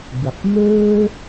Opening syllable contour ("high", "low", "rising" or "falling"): low